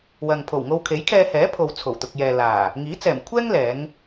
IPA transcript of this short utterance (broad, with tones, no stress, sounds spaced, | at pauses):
w ɐ˨ ŋ pʰ o˨˩ w ŋ o˧ w kʰ e˨˥ j kʰ ɛː˧ h ɛː˨˥ pʰ o˨ w t͡sʰ o˨˩ w t̪ ʊ˨ k̚ j ɛː˨ l aː˨˩ | ŋ iː˨˥ t͡s ɛː˨˩ m kʷʰ ɛː˥ ŋ l ɛː˨˧ ŋ